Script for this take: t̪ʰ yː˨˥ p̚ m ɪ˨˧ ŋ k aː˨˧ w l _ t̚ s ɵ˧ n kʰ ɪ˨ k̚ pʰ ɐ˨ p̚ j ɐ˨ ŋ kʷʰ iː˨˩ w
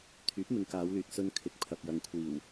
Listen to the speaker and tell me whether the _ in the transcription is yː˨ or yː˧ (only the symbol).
yː˨